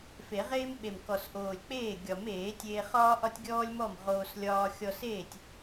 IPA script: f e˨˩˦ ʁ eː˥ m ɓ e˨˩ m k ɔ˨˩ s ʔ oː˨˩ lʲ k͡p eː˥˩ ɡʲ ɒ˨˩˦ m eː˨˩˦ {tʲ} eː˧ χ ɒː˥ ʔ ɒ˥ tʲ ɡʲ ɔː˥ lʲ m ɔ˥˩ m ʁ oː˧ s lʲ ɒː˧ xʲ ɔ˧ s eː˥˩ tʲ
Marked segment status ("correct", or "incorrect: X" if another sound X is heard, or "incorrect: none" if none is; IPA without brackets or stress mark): correct